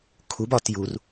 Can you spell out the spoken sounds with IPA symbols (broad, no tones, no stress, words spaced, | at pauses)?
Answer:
kʰub ɒt jur